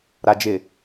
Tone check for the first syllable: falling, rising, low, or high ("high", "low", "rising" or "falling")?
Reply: low